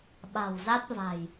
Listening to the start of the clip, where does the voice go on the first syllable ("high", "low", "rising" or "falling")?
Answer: low